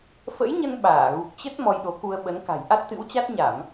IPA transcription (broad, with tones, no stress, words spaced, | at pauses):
fə̰˧˥jɲə˧n ɓaː˧˩ɣu˨˩k̚t͡ɕə˦˥t̚ mɔ˧jɗo˨˦ku˧ə̯ ɓə˨˦nka̤˨˩j ʔa˦˥t̚t̪ɨ̰˧˥wt͡ɕa˦˥t̚ ɲa˧˩˨m